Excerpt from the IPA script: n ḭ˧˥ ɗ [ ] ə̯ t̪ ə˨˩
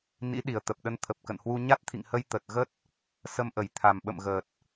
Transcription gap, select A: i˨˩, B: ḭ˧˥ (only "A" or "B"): A